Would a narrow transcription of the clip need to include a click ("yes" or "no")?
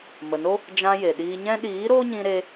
no